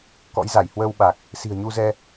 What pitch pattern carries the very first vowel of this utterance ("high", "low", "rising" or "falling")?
rising